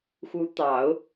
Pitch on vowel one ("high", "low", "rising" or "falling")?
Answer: rising